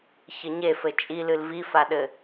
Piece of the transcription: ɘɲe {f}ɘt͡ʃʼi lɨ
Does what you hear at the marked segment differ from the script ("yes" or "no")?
no